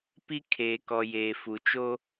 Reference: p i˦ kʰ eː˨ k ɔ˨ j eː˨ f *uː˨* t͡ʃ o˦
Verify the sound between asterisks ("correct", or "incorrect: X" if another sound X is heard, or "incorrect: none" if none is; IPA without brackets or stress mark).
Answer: incorrect: u˨